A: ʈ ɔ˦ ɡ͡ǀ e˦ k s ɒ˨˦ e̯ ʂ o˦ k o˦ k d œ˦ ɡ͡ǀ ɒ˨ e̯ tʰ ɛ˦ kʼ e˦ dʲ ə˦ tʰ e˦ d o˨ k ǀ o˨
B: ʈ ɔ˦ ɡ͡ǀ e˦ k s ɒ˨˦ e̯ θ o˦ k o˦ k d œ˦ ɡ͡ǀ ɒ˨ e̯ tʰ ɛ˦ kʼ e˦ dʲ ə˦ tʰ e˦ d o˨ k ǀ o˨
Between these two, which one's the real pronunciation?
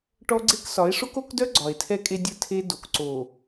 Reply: A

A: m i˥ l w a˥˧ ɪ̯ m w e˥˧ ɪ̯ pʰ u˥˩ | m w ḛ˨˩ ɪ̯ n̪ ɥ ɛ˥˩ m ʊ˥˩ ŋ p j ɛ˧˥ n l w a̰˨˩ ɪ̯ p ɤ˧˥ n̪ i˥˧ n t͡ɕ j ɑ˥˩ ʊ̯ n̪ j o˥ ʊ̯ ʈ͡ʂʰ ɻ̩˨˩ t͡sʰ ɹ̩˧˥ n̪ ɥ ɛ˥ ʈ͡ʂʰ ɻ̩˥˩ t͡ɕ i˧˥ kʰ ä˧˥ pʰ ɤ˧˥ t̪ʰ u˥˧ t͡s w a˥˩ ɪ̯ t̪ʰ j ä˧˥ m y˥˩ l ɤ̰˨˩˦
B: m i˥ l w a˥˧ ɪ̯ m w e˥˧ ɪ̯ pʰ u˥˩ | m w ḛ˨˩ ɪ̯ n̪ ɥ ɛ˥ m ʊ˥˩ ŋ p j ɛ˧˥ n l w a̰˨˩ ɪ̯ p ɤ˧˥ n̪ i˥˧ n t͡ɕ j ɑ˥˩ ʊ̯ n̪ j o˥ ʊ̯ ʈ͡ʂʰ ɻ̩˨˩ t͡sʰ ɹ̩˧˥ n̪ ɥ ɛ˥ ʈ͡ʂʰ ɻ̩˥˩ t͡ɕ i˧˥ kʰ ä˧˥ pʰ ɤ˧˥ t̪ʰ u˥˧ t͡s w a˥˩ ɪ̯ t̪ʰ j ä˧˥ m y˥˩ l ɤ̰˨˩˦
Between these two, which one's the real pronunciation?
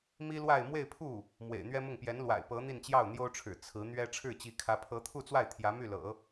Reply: B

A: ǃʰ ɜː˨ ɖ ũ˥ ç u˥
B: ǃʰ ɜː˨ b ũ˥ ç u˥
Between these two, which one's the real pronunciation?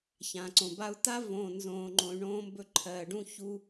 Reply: A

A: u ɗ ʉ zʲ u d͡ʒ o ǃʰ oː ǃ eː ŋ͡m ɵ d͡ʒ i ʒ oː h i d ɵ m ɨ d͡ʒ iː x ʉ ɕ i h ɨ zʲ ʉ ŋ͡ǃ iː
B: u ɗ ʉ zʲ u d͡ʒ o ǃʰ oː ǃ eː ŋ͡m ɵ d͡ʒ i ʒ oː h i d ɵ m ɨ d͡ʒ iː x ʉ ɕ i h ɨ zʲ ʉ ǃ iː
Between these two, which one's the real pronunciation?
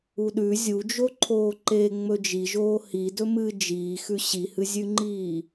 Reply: A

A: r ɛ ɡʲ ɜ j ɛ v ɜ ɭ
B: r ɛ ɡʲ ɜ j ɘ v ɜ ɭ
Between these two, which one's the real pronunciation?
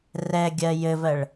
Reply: B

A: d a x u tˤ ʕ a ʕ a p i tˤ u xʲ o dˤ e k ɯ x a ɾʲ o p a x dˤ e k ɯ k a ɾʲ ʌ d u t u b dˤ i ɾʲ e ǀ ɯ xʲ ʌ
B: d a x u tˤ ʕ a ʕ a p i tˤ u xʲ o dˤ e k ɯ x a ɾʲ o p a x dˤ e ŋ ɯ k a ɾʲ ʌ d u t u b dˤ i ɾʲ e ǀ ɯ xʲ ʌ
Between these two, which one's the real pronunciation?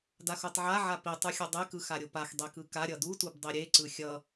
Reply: A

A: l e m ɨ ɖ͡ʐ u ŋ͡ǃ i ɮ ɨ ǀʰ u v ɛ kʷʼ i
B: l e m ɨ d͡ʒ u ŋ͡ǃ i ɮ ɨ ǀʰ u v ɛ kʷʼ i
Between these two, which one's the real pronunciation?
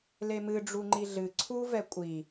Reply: A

